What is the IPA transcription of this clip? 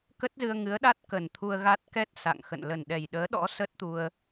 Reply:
k ə˦˥ t̚ z ɨ˧ ə̯ ŋ ɨ˨˦ ə̯ ɗ a˦˥ t̚ k ə˨˩ n t̪ʰ u˧ ə̯ ɣ a˦˥ t̚ k ɛ˦˥ t̚ s a̰˧˨ ŋ x ə̰˧˨ n l ə˨˩ n ɗ ɛ˨˩ j ɗ əː˨˦ ɗ ɔ̰˧˥ s ə˦˥ t̚ t̪ u˧ ə̯

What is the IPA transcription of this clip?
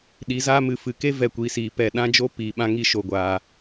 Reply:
ɗ i˨˦ z aː˦ m ɨ˨ f ɨ˨ k e˦ v ɛ˦˨ kʷ iː˧ s iː˨ p ɛ˦˨ ɗ ã˦ d͡ʒ o˦ p iː˨ ɓ ã˦ ŋ i˦ ʃ o˨ ɡʷ aː˨

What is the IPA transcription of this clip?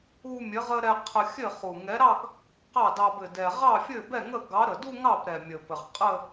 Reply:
u˧ mʲ ɘ˨˥ ʁ ə˧ ɾ ɛ˧ qʰ ə˧ xʲ ɘ˥˩ χ u˨˩ ŋ ɛ˨˥ ɾ ɑ˥˧ ɡ | q ɑ˥˩ d ɑ˧ b ɘ˨˩ d ɛ˨˩ ʁ ɑ˥˩ fʲ ɘ˥˩ b ɛ˥˩ ŋ ə˥˩ ɡ ɑ˨˥ ɾ ə˨˩ d u˥˧ ŋ ɑ˥˩ p ɾ ɛ˨˩ mʲ ə˨˩ p ɘ˨˩ ʁ qʼ ə˥˧

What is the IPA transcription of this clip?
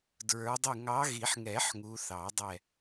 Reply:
d ɹ ə˞˨˦ dˤ ɪ˦˨ ŋ ɑ˨˦ ɣ i˨˩˦ ħ ŋ ɛ˨˩˦ ħ ŋ u˨˦ θ ɑ˨˩˦ dˤ ɛ˦˨

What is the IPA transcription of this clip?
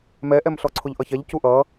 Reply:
m ɛ ʔ ɛ m ɬ ɔ ǀʰ ʊ ʎ ʔ ʌ ç ɛ ʎ c u ʔ ʌ

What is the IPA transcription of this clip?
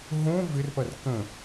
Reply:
ɦ õ v ɪ r p ɐ r k ə̃

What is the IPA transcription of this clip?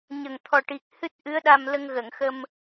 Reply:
ɲ ə˨˩ ŋ t̪ʰ ɔ˨˩ ʈ i˨˩ k̚ h ɨ˦˥ t̚ ʔ ɨ˧˥ ə̯ ɗ a˧ m l ə˧ ŋ ɣ ə˨˩˨ ŋ x ə˧ m

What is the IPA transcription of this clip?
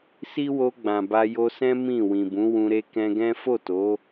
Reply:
s i˦ w o˧ ɡ͡b ã˨ b a˧ j o˧ s ɛ̃˦ m ĩ˦˨ w ĩ˨ b ũ˨˦ w ũ˧ ɾ e˦ k ɛ̃˧ ɡ ɛ̃˦ f o˦˨ t o˨˦

